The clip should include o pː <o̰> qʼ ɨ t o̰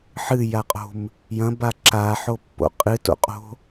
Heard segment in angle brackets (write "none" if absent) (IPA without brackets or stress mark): o̰